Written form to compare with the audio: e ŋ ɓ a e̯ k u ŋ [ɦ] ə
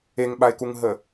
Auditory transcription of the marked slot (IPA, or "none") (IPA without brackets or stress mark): ɦ